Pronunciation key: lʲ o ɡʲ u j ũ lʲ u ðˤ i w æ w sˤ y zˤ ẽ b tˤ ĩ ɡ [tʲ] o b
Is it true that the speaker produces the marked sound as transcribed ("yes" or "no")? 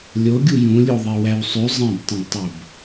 no